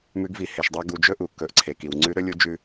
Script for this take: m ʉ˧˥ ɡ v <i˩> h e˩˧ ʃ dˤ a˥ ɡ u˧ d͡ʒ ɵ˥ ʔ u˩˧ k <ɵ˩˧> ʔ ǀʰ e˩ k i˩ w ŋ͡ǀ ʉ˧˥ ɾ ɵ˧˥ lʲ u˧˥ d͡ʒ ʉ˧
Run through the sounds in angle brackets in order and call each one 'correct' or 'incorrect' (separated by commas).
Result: incorrect, correct